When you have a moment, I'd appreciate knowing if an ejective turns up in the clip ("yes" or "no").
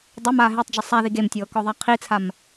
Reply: no